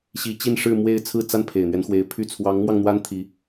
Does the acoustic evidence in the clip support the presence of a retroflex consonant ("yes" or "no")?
yes